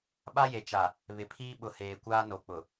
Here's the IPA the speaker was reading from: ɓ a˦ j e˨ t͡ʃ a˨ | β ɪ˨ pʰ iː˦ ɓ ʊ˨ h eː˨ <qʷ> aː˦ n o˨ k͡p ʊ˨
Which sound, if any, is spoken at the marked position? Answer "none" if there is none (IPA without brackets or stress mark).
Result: kʷ